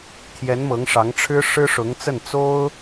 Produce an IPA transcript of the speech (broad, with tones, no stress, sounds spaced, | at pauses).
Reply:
t̪ʰ j ɛ˧˥ n m ɤ˧˥ ŋ ʂ ɑ˧˥ ŋ ʈ͡ʂʰ ɻ̩˥ ʂ ɻ̩˥ ʂ ʊ˧˥ ŋ t͡s ə˥˩ n t͡s o˥ ʊ̯